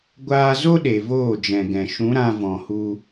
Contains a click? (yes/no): no